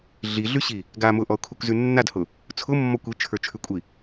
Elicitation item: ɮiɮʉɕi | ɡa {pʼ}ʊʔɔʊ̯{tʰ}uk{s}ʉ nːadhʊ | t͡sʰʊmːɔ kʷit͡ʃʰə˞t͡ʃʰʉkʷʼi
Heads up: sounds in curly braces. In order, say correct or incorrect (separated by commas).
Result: incorrect, incorrect, incorrect